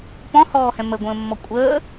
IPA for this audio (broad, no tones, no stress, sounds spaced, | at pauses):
p ɔ̃ h ɔː h ɛ̃ m ə ɡʷ ə̃ː mː ɔ kʷʼ əː